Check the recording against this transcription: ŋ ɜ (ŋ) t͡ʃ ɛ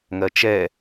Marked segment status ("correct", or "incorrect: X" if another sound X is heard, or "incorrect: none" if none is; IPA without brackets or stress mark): incorrect: none